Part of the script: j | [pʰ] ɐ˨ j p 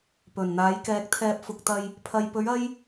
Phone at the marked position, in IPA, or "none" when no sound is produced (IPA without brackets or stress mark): pʰ